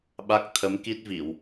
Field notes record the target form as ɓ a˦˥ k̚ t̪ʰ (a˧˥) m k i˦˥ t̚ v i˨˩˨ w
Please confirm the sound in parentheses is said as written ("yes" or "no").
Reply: no